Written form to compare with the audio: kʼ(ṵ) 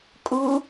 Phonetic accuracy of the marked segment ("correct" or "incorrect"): incorrect